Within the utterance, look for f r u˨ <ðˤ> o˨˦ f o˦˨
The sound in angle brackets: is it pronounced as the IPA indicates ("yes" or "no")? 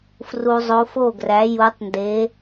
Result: no